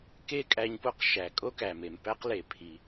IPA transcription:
k e˥ kʼ æ˧ ɲ p o˥ q ʃ æ˩ kʼ o˥ k æ˩ m e˩ m p æ˥ q l e˩ pʰ i˩

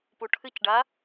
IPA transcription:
p u ʈʰ ɨ c ɖ a

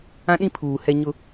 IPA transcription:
ã˦ ɗ ĩ˦ pʰ uː˨ h ɛ˦ ɲ ʊ˦

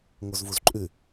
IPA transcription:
ŋ o z v u z ǃʼ ʉ

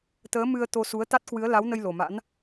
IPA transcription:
t̪ əː˨˦ m ɨ˧ ə̯ t̪ o˧ s u˨˦ ə̯ t̪ a˦˥ t̚ k w ɨ˨˦ ə̯ l a˨˦ w n ə˧ j l o˨˩ m a̰˧˥ n

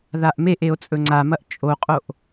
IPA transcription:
ð a ʔ m e ʔ e o̯ t͡sʼ ɵ ŋ͡ǀ a m ɐ ʔ t͡ʃʼ o qʼ o ʔ

